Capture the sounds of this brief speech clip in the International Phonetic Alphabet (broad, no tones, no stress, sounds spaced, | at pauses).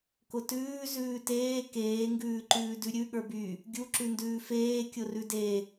k ʊ t ʉː z ʉː t eː k eː ŋ ɡ ʉː ǃ ʉː d ʉ ɾʲ ʉ ɠ ə˞ b y | ɡʲ u ǁ ʉ n d ʉː f eː kʲ ʊ r ʉ d e